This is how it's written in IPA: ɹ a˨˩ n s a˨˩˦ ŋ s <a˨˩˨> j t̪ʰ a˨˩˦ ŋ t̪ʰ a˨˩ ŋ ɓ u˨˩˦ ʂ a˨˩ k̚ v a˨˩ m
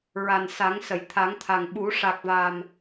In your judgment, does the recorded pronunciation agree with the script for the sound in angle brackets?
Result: no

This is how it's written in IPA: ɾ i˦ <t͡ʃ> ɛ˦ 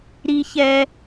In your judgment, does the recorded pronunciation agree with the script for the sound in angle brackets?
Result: no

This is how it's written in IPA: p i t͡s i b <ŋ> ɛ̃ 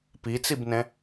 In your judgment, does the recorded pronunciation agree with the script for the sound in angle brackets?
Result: no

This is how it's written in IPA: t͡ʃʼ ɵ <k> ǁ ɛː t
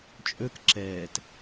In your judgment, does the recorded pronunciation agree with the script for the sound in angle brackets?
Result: yes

